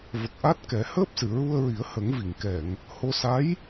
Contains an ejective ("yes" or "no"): no